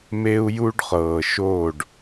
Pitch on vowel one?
high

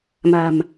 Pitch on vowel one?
low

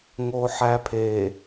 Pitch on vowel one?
high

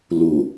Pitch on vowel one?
low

